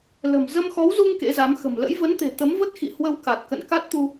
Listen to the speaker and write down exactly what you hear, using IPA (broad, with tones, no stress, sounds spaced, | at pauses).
l ə̤˨˩ m z ə˧ m x ɔ˨˦ w z u˧ ŋ k ḛ˧˥ z a˨˦ m x ə̤˨˩ m l ə̰˧˥ j v ə˨˦ n t̪ e̤˨˩ t̪ ə˨˦ m v ə˦˥ t̚ x ḭ˧˨ h w ə˧ w k a˨˩ t̚ k ə̰˧˨ n k a˦˥ t̚ t̪ u˧